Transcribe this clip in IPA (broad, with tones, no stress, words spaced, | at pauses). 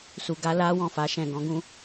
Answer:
su˨ɡa˧la˦wɔ̃˦˨ fa˨˦ʃɛ̃˦˨ɡɔ̃˨˦ɡũ˦